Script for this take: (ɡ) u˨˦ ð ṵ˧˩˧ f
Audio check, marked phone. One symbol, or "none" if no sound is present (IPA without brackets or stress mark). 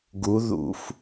ɡ